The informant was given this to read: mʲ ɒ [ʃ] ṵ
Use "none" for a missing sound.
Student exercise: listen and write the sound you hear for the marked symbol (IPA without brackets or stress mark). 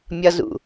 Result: z